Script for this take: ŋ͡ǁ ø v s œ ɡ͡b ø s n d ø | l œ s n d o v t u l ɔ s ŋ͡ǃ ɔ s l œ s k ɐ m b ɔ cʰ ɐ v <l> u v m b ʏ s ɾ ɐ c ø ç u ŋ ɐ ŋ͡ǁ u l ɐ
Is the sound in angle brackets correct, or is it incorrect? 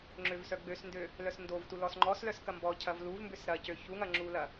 correct